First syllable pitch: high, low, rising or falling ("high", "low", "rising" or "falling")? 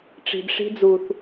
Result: low